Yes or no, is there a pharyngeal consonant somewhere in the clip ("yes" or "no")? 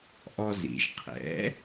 no